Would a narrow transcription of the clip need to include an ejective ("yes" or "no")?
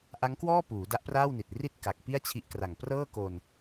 no